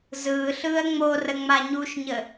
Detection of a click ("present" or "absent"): absent